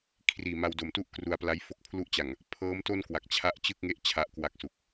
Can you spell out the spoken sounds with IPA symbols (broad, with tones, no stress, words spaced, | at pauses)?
kʰriː˨˩ma˧wdo˨˩mtu˥˩ʔ kru˧a̯pla˦˥jfo˥˩k̚ pʰlu˦˥ʔt͡ɕa˨˩ŋ | pʰɤː˦˥mto˥˩nkwa˨˩k̚ t͡ɕʰa˥˩ʔ t͡ɕɯ˥˩k̚ŋe˥˩ʔ t͡ɕʰa˦˥ʔkwa˦˥k̚su˨˩k̚